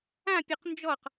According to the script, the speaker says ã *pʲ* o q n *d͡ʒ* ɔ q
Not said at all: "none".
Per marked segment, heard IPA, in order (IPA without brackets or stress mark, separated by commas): pʲ, d͡ʒ